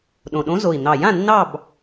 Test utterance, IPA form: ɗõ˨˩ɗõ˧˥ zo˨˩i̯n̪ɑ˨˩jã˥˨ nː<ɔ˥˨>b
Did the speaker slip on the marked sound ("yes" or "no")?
yes